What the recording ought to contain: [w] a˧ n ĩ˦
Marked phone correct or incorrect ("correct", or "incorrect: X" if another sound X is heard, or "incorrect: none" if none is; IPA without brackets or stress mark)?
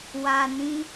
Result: correct